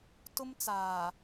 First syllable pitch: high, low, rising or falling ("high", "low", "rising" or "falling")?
high